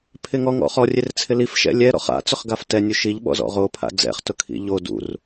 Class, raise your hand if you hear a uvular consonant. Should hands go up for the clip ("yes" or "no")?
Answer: yes